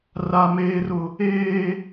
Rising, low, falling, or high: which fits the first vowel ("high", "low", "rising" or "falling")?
low